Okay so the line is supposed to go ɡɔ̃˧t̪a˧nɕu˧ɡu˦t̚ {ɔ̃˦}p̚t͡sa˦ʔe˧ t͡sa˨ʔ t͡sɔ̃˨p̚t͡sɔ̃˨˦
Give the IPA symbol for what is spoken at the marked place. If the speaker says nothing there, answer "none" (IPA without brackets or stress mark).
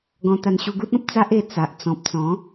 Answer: ɔ̃˦